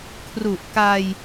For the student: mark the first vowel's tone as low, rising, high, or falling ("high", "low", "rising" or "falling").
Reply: low